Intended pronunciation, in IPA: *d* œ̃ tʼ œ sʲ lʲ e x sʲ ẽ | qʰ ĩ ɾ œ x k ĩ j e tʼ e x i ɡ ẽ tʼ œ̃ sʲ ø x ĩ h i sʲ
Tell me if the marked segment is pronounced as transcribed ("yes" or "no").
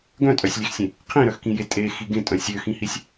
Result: no